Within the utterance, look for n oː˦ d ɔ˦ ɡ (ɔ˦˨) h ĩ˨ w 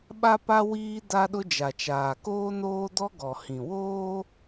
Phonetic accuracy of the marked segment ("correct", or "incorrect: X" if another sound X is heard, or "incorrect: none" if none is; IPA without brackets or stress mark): incorrect: ɔ˨